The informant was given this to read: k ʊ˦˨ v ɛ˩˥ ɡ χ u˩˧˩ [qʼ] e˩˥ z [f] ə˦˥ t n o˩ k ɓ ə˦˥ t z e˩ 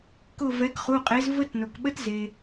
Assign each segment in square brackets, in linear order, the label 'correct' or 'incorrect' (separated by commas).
correct, incorrect